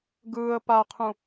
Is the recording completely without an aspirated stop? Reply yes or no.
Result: no